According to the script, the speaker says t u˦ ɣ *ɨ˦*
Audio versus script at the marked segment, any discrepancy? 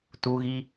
yes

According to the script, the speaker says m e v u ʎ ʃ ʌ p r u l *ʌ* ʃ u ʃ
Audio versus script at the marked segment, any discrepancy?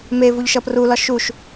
yes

